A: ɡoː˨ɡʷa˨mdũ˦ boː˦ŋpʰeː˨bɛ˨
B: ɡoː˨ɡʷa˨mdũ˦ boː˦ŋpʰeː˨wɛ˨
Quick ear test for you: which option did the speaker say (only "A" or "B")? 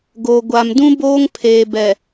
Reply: A